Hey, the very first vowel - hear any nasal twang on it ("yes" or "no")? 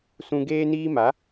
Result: yes